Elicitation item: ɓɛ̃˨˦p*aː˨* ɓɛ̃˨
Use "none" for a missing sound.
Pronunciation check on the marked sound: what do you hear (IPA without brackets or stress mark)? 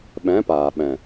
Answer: aː˨